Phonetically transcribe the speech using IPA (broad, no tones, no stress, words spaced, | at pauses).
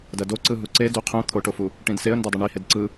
dɐdoǀɯ ɦuǀe duqʰũ t̪ʰoʈofu | ʈĩdseə̯ndɐ dˤɐɳi hedǀɯ